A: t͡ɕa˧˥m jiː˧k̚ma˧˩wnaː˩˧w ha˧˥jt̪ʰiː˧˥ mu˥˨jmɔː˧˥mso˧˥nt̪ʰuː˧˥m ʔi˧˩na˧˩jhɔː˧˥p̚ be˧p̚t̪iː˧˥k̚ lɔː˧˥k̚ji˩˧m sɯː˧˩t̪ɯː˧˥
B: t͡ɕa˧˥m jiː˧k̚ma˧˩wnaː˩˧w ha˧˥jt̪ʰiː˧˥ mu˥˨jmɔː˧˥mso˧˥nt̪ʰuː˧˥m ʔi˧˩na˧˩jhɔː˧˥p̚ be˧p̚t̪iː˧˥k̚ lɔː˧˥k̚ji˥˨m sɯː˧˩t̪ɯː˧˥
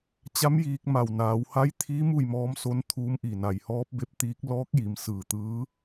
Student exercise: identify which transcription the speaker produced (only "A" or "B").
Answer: A